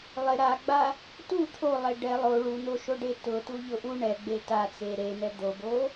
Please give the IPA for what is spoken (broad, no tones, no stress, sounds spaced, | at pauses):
lˠ ɪ ɾ a ɡ͡b a | t u t̪ʰ o lˠ e ɖ ɛ lˠ o ɭ u n̪ o ʃ o ɖ e t ʊ t u ʎ ʊ ʔ u ɳ ɛ ɡ͡b e t a t͡s e ɾ e n̪ ɛ d̪ o b o